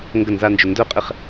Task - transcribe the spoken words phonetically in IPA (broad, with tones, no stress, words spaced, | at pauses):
ŋɡə˥˩nza˥˧nd͡ʒʏ˧ ndœ˥˩qʼɪ˥˩χ